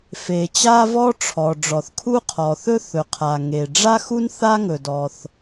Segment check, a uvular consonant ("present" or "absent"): present